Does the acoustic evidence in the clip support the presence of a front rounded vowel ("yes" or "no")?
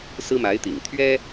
no